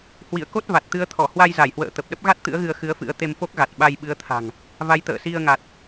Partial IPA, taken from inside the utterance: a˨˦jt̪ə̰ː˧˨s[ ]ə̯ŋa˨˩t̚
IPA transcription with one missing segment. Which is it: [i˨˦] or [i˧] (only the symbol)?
i˧